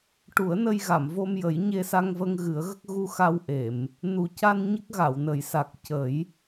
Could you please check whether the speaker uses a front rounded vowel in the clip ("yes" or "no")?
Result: no